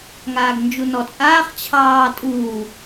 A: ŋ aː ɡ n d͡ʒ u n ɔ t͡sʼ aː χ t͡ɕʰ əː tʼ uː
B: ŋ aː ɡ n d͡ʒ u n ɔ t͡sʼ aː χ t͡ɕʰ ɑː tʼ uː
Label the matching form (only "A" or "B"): B